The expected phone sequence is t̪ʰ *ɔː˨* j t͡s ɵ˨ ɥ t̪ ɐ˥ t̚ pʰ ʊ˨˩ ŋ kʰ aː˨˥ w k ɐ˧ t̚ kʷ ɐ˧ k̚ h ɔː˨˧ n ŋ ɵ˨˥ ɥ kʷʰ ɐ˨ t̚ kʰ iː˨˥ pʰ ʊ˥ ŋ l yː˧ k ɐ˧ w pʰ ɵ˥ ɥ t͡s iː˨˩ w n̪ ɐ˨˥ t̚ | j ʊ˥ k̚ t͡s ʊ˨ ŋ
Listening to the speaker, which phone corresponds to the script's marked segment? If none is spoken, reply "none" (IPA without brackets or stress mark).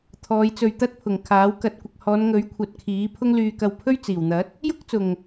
ɔː˨˧